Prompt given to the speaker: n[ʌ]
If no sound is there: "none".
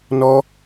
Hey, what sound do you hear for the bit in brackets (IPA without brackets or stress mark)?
ɔ